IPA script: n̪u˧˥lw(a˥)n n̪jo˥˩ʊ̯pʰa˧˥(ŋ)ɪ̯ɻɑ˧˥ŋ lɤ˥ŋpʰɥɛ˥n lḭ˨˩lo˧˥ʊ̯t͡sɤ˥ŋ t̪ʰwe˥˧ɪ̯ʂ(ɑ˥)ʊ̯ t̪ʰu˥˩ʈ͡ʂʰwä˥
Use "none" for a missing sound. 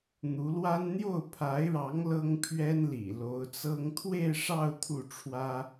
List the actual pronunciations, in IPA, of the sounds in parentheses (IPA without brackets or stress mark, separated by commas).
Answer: a˥, none, ɑ˥˧